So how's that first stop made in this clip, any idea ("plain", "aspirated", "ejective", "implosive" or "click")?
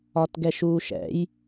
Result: plain